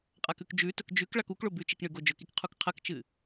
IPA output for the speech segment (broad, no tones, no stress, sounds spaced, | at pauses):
qʼ a k ʉ k d͡ʒ ʉ t ɵ k d͡ʒ ʉ k ɭ a k u k ɭ o b ʉ t͡ʃ i k ɳ ɨ ɡ o d͡ʒ ɵ k i k qʰ u k qʰ ɐ k t͡ʃ ɨ